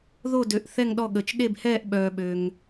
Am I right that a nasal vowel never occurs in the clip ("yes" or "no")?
yes